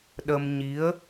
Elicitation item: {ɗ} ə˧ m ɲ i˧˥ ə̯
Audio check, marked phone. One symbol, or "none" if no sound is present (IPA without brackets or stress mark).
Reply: ɗ